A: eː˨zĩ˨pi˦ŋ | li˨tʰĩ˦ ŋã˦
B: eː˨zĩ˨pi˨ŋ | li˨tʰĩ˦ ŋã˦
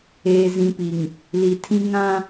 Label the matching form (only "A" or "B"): B